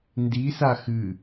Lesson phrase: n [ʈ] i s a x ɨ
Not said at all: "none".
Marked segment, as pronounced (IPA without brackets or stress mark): d